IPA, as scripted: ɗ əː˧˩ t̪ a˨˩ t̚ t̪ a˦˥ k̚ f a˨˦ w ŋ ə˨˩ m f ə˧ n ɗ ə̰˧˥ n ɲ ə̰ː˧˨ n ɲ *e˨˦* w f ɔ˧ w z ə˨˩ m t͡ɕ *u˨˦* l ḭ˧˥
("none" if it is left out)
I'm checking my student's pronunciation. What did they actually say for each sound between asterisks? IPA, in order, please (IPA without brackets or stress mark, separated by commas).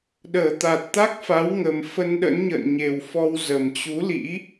e˨˩, u˨˦